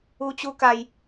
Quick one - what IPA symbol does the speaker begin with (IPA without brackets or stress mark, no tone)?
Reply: u